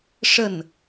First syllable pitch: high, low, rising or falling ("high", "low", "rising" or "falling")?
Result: falling